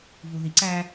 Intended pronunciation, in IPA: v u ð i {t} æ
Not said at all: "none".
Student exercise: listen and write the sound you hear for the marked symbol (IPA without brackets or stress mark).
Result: ǀ